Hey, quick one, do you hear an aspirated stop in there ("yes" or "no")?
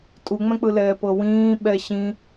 no